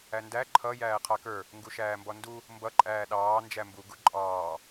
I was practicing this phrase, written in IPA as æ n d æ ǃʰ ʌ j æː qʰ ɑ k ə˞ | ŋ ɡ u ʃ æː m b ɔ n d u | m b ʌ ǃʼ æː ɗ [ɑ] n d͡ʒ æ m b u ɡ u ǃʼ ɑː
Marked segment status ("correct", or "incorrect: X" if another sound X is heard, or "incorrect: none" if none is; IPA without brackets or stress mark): incorrect: ɑː